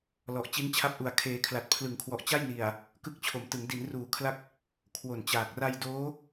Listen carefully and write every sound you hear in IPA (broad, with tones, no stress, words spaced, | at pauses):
lɔ˨˩ʔt͡ɕi˦˥nt͡ɕʰa˦˥p̚ ʔu˨˩a̯kʰeː˨˩kʰla˨˩t̚ pʰlɯ˩˦ŋkʰwɔ˨˩ʔ t͡ɕa˥˩jni˨˩a̯ | kɯ˦˥k̚t͡ɕʰo˩˦m tɯ˩˦ŋ di˩˦nruː˩˦kʰla˦˥k̚ | kʰwo˨˩nt͡ɕaː˨˩k̚ ra˧jdoː˦˥